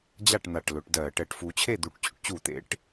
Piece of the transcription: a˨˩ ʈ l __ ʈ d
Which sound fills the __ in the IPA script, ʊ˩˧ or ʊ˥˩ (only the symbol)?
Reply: ʊ˩˧